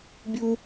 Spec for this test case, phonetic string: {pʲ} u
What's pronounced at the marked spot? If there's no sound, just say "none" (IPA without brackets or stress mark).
bʲ